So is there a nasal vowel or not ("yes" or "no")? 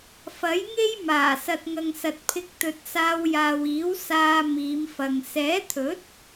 no